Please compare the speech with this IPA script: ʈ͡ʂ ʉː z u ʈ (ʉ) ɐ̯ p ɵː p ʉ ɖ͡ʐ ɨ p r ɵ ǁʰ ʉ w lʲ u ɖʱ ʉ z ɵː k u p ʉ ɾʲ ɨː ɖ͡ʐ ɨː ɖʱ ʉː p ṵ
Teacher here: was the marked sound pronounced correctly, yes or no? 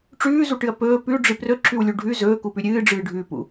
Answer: no